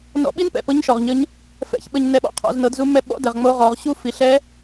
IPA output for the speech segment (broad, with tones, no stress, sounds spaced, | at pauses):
n ɔ̰˧ ɓ i˥ n p ɛ̰˩ p ɤ˧˥ ɲ ʃ ɔ˩ ʁ ɲ ə˧˥ ɲ | f ɛ̰˧˥ ç ɓ ə˧ ɲ n ɛ˧ ɓ ɔ̰˩˧ qʰ ɔ̰˩˧ z n ɤ˩˧ d z u˧˥ m ɛ˧ ɓ ɔ̰˧˥ d ɛ˩ ʁ ŋ͡m o˧˥ ʁ ɔ˩˧ ʁ ɕ u˥ f i˩˧ ɬ ɛ˧˥